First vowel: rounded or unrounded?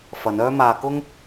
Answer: unrounded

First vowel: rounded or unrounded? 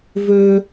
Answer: rounded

